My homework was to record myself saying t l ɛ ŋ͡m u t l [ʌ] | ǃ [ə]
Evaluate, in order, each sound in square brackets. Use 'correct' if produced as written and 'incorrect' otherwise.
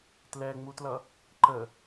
correct, correct

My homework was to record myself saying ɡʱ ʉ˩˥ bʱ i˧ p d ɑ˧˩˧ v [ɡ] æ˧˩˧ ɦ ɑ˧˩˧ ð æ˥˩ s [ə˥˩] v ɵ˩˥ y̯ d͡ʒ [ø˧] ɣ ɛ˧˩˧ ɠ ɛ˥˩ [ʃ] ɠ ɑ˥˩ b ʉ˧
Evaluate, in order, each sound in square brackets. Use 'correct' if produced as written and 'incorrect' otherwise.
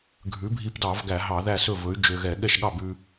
correct, incorrect: ɵ˥˩, correct, correct

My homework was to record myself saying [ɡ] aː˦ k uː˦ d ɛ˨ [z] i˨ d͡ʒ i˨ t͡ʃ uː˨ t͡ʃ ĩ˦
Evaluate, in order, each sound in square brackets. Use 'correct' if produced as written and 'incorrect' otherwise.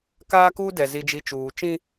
incorrect: k, correct

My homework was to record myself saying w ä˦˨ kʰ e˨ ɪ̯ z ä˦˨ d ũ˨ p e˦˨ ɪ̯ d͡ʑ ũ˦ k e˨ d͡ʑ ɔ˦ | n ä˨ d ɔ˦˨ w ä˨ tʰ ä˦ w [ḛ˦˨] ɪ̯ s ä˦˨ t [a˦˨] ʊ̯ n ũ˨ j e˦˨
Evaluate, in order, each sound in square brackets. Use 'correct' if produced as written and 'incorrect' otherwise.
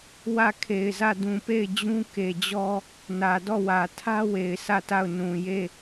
incorrect: e˨, correct

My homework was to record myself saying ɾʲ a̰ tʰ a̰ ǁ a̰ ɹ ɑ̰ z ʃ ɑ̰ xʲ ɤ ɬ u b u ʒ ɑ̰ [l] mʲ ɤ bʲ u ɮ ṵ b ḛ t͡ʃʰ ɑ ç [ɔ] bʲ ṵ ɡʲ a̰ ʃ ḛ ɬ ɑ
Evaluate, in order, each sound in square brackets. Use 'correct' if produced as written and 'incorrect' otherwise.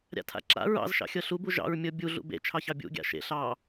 incorrect: ɹ, incorrect: ɑ

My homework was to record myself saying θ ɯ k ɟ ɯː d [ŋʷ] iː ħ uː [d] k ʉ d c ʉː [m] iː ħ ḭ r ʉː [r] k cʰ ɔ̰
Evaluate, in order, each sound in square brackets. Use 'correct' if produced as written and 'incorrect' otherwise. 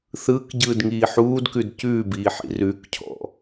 incorrect: ŋ, correct, incorrect: b, incorrect: none

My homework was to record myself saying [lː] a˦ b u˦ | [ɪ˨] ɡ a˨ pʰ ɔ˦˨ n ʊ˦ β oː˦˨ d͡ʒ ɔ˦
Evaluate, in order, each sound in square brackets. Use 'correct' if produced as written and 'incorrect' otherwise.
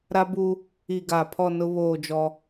incorrect: ɾ, incorrect: i˨

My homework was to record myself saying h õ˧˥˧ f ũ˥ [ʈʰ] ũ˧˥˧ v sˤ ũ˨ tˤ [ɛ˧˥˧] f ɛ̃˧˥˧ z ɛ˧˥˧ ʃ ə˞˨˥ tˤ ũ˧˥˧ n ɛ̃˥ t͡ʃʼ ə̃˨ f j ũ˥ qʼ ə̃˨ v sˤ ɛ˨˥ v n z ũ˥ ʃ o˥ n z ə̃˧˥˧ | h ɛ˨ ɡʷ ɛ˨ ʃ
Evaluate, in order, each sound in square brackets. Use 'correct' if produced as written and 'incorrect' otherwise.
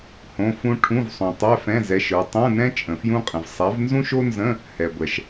correct, correct

